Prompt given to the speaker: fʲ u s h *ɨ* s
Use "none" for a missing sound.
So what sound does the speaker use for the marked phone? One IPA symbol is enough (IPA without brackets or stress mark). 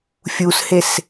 e